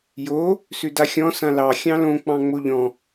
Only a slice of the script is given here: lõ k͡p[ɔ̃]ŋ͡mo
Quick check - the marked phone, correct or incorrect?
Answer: incorrect